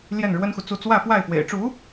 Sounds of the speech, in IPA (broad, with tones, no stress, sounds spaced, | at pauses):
l j ɛ˥˩ n ɻ w ə˥ n x u˨ t͡s u˥˧ t͡s w ä˥˧ f w a˥˩ ɪ̯ f w ḛ˨˩ ɪ̯ ʈ͡ʂ u˧˥